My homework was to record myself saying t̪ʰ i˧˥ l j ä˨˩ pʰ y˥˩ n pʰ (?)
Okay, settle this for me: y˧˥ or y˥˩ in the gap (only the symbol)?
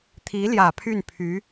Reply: y˧˥